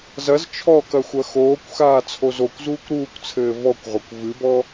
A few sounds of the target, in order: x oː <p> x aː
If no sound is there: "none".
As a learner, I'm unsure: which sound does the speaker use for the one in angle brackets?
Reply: kʷ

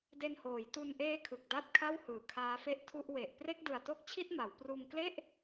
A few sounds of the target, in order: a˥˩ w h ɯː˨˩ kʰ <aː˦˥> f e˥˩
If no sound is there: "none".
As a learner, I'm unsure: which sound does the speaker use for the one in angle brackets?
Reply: aː˦˥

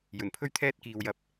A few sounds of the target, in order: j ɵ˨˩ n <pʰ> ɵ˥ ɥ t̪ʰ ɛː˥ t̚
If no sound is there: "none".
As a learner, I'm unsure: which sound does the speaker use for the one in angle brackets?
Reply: pʰ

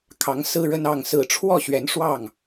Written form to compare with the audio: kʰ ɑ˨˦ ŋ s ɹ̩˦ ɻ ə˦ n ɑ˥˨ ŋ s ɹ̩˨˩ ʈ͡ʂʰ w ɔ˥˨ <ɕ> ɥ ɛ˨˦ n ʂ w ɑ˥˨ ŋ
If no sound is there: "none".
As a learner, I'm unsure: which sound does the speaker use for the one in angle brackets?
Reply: ɕ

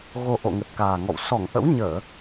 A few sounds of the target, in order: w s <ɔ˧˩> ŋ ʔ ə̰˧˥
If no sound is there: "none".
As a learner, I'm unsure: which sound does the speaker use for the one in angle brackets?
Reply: ɔ˧˩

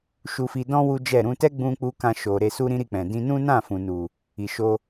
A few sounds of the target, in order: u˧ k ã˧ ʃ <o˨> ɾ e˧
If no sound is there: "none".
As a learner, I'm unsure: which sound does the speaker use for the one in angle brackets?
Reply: o˨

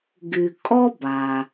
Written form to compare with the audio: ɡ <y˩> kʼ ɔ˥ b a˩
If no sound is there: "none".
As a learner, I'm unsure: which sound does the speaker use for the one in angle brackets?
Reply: y˩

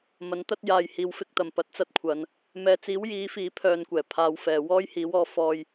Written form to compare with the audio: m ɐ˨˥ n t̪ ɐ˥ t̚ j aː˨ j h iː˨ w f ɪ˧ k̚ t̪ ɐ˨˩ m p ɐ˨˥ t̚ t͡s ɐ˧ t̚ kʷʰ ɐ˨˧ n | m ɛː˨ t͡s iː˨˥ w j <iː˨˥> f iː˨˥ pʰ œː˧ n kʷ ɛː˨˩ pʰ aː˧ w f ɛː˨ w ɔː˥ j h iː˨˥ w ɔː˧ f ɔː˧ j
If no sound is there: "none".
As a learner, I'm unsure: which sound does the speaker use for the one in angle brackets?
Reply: iː˨˥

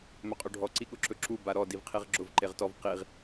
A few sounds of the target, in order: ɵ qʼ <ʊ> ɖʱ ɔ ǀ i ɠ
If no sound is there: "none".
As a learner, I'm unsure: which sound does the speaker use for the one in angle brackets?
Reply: ɵ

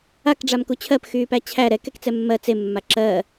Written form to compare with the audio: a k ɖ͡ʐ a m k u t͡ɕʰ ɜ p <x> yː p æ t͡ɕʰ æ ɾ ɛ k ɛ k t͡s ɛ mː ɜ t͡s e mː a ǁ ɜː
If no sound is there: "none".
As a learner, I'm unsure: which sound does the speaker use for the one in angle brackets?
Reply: x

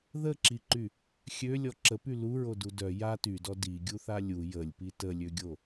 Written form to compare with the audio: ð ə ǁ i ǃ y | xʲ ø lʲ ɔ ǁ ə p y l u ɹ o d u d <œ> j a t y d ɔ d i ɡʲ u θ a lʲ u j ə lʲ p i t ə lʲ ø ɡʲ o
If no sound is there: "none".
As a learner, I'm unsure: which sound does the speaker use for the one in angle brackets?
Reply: œ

